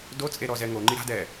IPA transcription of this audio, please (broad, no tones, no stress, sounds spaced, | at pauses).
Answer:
d o t͡sʼ e ɾ ɔ z ɛ ŋ o ŋ͡ǃ i ɾ a̤ d ɛ